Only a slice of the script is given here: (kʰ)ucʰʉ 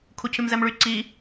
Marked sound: correct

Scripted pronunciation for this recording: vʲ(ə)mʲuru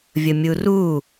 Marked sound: correct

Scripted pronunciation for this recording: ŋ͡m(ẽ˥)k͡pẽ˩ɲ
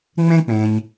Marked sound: correct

